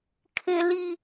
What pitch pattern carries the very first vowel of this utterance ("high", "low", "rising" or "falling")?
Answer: high